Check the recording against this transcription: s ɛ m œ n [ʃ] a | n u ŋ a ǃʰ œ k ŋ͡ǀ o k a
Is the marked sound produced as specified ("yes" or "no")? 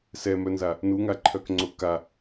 no